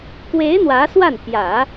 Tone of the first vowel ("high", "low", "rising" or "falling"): rising